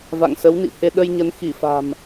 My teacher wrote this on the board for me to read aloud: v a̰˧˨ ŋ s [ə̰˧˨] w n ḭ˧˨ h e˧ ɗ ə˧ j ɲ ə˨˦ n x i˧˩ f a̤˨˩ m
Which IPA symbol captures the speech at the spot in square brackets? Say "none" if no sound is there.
ə˨˦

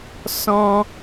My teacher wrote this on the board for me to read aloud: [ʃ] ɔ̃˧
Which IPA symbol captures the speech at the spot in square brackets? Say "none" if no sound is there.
s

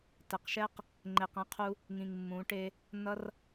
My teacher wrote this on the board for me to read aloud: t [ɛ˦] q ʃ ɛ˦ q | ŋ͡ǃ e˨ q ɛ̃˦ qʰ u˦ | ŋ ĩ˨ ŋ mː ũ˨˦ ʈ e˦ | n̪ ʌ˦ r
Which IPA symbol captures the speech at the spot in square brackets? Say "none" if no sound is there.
ɛ˨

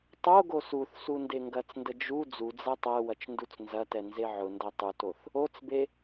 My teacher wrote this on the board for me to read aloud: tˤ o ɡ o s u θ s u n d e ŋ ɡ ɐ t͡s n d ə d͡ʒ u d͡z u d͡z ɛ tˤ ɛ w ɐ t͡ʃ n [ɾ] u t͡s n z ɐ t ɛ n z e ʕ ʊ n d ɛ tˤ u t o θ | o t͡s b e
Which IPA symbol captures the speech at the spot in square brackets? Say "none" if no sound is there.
d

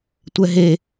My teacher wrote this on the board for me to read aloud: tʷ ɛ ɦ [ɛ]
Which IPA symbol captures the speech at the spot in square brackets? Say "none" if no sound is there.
e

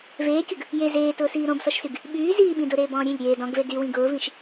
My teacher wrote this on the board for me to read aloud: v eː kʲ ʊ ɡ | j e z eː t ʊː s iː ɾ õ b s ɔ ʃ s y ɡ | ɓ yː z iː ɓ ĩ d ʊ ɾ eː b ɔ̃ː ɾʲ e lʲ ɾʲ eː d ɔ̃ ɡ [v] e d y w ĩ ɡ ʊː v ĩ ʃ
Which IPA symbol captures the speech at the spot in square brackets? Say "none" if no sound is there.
v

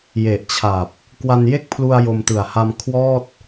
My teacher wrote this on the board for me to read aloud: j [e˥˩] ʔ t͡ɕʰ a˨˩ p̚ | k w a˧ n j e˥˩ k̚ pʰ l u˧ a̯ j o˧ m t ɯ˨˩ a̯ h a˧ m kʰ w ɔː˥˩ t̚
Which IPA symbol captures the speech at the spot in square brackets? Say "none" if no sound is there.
e˨˩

